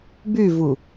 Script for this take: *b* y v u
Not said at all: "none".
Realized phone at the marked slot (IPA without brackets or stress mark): b